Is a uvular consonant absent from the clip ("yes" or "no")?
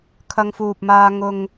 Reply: yes